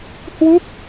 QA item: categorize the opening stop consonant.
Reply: plain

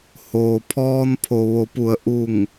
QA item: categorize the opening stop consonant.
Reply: aspirated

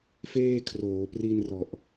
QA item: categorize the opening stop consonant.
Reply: aspirated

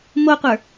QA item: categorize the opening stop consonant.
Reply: plain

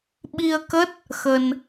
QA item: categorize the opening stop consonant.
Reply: implosive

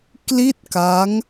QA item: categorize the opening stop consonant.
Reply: plain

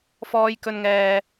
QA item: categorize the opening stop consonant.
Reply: plain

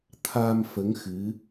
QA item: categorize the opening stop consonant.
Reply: aspirated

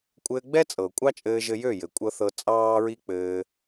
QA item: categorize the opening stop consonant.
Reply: ejective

